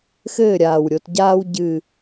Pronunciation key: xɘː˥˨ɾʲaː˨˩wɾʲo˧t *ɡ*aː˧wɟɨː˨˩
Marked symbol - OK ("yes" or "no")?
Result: no